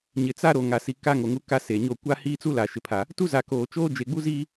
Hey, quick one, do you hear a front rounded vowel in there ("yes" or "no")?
no